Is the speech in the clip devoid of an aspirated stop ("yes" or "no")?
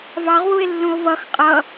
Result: yes